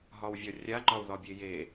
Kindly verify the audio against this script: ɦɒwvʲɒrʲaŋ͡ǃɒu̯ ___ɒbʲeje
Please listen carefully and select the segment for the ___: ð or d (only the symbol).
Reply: ð